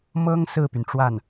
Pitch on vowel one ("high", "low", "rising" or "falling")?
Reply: high